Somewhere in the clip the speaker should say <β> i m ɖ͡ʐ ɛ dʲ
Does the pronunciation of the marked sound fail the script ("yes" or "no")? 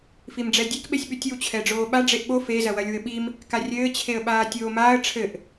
yes